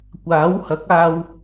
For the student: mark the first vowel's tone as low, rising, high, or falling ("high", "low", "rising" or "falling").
rising